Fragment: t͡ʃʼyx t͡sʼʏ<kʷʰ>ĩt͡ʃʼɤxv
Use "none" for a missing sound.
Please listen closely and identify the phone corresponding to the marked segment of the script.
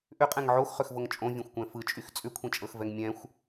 kʷʰ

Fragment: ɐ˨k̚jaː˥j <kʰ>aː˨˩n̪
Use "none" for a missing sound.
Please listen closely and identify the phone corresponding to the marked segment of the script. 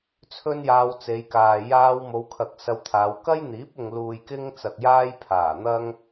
pʰ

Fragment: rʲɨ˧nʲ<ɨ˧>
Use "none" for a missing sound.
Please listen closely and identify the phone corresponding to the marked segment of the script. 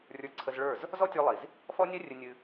ɨ˧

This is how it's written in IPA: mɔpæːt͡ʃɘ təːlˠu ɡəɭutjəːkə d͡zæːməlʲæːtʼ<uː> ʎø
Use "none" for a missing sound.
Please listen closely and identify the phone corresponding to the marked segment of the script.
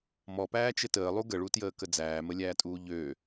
uː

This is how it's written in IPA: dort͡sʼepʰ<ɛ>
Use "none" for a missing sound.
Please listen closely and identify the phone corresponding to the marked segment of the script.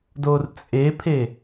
e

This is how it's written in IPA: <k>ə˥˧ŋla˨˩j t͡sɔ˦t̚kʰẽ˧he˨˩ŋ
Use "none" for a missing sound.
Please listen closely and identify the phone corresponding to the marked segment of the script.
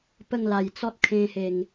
p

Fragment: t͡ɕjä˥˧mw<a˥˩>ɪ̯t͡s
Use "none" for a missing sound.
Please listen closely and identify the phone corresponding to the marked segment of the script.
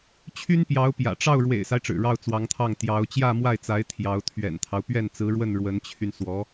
a˥˩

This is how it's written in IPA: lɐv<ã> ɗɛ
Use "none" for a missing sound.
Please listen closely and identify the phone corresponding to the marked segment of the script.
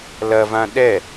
ã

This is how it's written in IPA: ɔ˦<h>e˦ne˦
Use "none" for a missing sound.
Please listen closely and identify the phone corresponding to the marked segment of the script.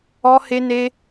h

